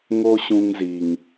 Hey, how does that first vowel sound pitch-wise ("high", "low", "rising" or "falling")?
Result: high